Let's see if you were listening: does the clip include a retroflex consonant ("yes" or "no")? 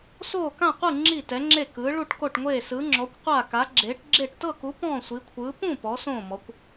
yes